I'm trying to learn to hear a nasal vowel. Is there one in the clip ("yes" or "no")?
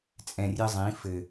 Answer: yes